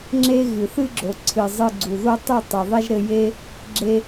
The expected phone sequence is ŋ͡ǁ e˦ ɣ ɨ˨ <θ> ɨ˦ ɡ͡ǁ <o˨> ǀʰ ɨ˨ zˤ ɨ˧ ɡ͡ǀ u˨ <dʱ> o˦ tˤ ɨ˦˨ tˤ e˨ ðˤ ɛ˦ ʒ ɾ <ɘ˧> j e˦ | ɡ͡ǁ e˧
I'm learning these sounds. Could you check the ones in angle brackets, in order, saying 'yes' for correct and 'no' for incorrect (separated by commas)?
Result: yes, yes, no, yes